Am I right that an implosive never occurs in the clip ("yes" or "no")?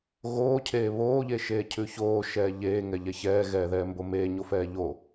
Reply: yes